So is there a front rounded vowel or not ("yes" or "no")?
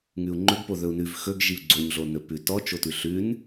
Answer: no